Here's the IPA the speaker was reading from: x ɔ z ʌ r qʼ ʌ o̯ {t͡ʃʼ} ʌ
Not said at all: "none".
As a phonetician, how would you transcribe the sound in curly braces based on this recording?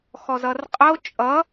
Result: t͡ʃʼ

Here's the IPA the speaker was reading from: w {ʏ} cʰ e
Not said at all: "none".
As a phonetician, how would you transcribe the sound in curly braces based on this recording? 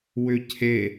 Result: ʏ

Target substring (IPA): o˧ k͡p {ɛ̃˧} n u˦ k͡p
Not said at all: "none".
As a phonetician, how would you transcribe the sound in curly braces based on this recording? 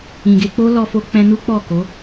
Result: ɛ̃˧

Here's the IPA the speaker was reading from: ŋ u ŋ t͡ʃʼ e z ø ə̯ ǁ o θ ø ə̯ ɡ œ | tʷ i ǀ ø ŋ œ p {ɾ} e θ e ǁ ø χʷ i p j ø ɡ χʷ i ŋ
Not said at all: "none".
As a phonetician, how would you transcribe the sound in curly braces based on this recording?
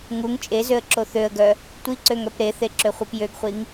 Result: ɾ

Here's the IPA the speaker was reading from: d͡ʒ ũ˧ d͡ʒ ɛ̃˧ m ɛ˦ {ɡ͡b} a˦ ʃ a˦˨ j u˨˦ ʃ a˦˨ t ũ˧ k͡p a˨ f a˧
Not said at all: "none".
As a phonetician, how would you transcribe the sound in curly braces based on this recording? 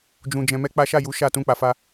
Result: k͡p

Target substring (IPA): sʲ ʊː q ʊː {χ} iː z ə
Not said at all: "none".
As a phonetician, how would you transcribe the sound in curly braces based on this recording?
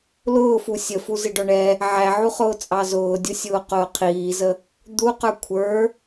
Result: qʰ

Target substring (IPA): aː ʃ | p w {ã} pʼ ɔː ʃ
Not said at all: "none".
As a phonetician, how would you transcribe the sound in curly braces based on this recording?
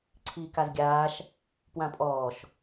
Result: ã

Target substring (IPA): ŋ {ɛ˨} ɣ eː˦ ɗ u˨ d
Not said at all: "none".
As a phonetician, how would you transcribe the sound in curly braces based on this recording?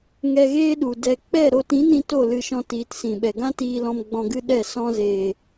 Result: ɛ˧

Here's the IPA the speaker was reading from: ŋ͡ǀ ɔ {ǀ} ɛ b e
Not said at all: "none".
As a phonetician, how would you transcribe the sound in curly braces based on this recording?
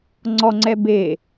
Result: ŋ͡ǀ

